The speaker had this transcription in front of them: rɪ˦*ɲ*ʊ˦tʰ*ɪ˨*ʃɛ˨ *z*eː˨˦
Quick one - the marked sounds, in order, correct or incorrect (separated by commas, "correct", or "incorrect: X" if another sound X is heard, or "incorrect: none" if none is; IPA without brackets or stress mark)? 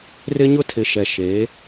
correct, correct, incorrect: ʃ